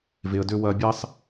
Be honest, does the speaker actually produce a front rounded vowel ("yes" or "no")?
yes